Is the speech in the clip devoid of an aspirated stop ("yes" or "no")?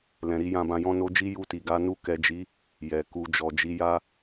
yes